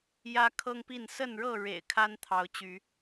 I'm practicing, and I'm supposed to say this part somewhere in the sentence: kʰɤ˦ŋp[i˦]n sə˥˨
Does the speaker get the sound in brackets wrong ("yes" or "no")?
yes